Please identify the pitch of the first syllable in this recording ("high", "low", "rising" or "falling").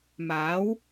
rising